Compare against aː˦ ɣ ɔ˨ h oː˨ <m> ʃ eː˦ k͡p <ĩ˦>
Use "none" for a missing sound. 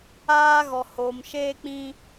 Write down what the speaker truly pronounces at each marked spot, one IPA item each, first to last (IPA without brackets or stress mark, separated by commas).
m, ĩ˦